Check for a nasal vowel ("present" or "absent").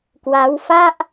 absent